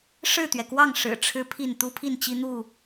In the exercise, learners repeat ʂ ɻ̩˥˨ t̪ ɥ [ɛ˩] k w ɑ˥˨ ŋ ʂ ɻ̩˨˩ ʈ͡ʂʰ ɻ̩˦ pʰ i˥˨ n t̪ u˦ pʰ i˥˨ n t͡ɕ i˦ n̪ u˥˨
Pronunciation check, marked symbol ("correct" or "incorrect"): correct